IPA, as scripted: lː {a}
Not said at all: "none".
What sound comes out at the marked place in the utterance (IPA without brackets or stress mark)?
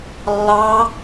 ɑ